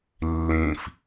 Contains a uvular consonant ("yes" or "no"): no